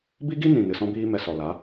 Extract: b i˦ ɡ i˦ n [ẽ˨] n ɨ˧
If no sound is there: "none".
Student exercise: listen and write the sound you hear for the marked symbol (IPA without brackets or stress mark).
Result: ĩ˨